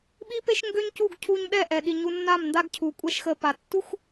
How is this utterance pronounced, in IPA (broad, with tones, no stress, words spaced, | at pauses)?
ɓi˦pe˦ʃŋɡø˦ɲcu˦˨ɡ cʰu˧ɲɗɛ˦˨ʔɛ˨ɗi˨ ɲu˧nːa˦˨m nda˦ɡcʰu˨kʷʼɛ˦ʃxə˧ pa˨tːu˦x